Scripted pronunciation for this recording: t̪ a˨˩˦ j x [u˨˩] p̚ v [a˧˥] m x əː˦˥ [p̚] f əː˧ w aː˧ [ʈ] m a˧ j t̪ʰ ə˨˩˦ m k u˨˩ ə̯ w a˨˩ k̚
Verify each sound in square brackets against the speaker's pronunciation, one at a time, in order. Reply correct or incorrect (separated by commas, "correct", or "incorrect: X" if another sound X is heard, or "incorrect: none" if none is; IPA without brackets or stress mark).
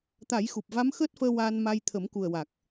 correct, correct, incorrect: t̚, incorrect: n